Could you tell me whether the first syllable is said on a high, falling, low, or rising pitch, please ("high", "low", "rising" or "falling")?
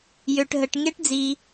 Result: low